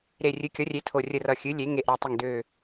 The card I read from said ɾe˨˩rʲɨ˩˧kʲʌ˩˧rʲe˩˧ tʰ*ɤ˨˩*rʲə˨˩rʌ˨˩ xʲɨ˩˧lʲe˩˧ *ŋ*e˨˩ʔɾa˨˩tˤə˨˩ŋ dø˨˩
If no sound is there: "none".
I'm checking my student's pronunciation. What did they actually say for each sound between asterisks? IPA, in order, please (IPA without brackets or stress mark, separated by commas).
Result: o˨˩, ŋ